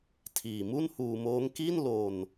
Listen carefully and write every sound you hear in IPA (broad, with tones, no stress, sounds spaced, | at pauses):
tʰ iː˨˩ m u˥˩ n h uː˧ m oː˦˥ ŋ k i˥˩ n l o˧ n